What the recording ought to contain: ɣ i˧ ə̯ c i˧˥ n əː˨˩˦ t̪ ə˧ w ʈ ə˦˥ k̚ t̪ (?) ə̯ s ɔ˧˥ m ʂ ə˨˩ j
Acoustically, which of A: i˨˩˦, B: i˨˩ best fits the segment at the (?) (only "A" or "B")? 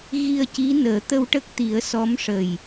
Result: A